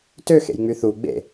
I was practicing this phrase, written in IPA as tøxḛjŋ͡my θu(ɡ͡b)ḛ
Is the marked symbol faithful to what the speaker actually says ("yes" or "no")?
yes